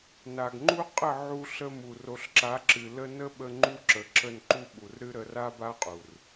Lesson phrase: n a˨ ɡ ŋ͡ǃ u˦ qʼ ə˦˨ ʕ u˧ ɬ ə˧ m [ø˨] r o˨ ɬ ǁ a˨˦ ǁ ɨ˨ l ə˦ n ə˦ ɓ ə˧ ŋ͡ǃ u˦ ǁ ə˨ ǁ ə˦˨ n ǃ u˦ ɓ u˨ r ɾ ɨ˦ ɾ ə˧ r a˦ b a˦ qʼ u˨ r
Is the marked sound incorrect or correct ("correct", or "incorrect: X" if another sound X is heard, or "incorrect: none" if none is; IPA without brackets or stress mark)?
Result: incorrect: u˨